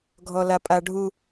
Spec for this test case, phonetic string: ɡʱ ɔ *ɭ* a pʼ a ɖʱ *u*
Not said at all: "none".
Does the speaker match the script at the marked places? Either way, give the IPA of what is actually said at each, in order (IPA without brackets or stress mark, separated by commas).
l, u